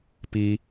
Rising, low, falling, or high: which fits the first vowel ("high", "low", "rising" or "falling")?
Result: low